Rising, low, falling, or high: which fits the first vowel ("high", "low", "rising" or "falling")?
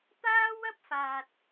high